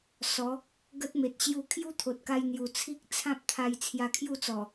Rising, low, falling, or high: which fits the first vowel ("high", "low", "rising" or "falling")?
rising